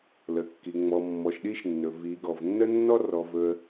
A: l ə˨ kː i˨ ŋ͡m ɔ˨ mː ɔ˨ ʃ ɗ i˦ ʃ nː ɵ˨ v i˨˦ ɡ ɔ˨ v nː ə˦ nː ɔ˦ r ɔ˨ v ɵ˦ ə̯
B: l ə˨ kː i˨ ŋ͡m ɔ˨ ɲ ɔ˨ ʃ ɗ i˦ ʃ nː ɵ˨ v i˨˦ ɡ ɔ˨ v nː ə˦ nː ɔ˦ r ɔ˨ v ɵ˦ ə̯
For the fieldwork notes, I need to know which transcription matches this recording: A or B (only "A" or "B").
A